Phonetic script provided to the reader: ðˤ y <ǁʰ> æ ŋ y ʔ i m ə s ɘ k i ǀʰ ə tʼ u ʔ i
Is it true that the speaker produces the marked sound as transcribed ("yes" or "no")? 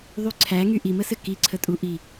no